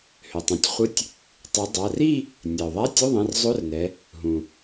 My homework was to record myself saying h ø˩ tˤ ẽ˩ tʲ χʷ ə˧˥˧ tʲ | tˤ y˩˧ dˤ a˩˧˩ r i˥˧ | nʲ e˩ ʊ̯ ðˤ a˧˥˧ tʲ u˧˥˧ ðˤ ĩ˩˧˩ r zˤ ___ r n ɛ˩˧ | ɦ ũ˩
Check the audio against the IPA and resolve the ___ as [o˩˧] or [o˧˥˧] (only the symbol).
o˧˥˧